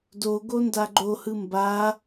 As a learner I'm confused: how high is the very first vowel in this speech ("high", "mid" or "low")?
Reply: mid